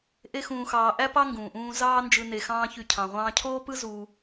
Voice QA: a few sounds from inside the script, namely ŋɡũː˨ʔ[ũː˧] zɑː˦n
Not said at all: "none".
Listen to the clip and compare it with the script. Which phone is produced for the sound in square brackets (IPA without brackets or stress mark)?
ũː˧